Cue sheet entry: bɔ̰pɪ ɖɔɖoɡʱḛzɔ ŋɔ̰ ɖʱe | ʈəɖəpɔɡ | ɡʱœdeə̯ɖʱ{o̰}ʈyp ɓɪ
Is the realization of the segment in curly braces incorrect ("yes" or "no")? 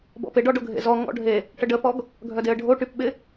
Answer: yes